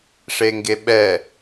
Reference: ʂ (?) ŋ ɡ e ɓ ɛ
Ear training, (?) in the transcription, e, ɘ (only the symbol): e